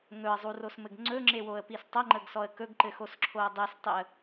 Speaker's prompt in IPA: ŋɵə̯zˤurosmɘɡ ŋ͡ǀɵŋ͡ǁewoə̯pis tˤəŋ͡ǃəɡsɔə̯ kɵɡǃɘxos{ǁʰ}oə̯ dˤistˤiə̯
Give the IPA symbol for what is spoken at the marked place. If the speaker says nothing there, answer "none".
ǁʰ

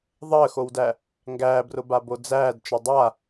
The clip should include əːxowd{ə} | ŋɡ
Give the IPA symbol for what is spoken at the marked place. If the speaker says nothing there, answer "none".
æ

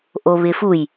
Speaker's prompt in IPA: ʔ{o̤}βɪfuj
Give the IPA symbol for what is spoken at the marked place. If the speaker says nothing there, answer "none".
o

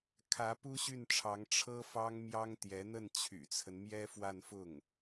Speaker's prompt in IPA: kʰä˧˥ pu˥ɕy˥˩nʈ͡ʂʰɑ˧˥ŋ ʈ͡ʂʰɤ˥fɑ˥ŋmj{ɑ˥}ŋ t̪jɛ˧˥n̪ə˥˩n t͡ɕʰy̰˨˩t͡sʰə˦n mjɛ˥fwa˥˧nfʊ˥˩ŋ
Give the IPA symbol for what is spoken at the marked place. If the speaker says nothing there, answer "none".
ɑ˥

